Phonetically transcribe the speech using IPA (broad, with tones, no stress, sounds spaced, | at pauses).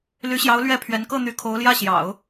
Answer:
l y˧˥ ɕ j ɑ˧˥ ʊ̯ l ɥ ɛ˥˩ pʰ ɥ ɛ˧˥ n k ɤ˥˩ n̪ y˧˥ kʰ o˧˥ ʊ̯ l j ä˥˩ ɕ j ɑ̰˨˩˦ ʊ̯